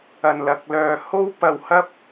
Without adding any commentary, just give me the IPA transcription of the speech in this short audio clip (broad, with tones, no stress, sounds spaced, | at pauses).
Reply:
ɐ˧ n l ɐ˧ k̚ l œː˧ h o˥ w p ɐ˧ w h ɐ˥ p̚